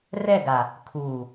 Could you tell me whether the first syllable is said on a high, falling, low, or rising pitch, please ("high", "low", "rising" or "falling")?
falling